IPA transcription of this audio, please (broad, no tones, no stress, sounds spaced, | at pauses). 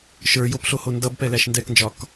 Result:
ʃ ə˞ j o p ɬ o h o n d ʌ b p ɛ l æ ʃ n d ɛ k n d͡ʒ ɒ k